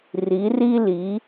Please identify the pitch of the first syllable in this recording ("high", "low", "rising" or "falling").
rising